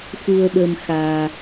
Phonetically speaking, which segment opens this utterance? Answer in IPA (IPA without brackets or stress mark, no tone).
x